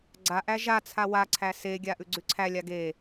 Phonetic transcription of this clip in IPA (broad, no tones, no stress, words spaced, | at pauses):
ɡ͡ǀaʔæ ʒat͡sʰa waǀʰæ seɡʲa ʔʉɡ͡ǀʉǀʰælʲa ɡe